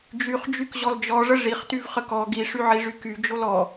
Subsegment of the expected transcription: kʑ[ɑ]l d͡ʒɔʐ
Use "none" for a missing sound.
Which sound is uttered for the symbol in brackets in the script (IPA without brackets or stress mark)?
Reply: ɔ